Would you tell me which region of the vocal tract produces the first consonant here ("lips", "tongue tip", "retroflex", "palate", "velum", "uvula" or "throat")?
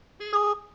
tongue tip